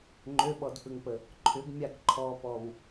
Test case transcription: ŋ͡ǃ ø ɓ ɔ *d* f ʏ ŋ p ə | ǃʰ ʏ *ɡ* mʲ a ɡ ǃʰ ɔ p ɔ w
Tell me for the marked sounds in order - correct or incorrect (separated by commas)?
correct, correct